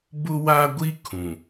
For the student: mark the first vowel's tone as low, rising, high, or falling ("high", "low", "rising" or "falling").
high